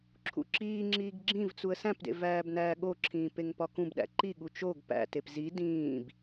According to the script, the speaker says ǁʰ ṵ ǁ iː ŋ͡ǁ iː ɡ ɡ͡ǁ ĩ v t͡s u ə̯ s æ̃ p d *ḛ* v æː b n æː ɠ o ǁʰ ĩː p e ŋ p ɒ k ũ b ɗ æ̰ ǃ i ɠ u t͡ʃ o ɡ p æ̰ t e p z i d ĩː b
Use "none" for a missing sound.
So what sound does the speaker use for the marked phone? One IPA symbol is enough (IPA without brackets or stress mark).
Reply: ḛ